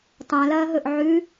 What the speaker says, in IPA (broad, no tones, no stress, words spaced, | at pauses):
tˤãlɐːɦɵʔ ʕʉ